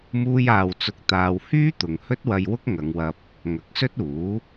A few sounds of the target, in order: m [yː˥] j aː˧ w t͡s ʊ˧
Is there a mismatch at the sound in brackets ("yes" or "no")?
yes